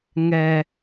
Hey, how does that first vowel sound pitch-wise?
low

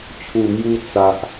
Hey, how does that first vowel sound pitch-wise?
low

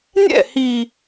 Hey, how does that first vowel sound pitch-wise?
falling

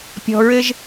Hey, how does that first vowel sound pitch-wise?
low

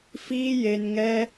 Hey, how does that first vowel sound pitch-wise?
high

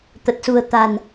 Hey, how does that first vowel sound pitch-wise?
low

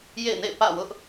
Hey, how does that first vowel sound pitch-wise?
falling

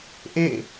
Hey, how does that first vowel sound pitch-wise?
falling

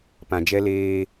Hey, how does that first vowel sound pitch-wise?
low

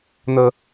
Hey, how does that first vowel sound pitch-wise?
low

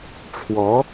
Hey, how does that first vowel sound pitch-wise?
rising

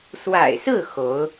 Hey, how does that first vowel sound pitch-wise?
low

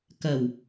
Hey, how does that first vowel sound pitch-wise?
low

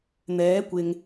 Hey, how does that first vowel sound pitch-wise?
rising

